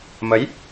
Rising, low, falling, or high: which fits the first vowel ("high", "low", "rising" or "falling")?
rising